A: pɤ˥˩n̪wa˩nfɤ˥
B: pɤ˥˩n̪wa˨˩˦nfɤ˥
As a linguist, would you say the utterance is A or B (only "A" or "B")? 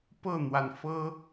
A